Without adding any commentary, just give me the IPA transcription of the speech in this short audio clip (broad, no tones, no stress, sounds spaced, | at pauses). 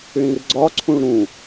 ɭ ĩ r ɡ͡ǀ ɒ ǀʰ ũ ɭ ɾ ũ